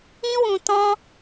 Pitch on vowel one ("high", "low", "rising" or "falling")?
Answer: high